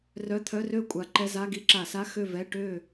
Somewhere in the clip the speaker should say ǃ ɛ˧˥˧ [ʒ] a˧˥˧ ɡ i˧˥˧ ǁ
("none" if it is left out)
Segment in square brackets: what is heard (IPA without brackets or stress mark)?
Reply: z